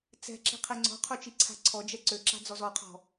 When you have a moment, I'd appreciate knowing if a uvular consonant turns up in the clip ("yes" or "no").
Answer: yes